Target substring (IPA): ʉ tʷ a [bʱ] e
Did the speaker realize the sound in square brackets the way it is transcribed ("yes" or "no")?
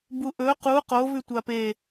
no